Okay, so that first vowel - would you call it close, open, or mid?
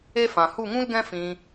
mid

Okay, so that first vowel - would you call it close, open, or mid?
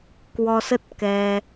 mid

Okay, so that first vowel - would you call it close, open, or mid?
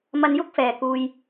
open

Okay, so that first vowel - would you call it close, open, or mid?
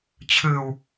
close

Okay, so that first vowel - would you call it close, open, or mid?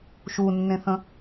close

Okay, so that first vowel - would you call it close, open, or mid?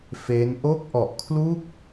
mid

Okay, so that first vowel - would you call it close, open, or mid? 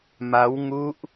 open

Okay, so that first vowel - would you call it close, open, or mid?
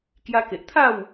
open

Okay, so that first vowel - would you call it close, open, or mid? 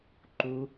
close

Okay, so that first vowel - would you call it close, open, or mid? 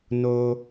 mid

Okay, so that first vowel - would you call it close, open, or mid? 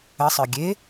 mid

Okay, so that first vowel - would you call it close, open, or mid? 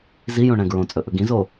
close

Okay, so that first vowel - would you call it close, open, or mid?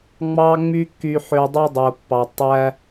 open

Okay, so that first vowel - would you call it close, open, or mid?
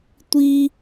close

